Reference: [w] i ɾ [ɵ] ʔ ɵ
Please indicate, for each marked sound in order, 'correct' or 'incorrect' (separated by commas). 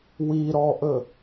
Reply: correct, incorrect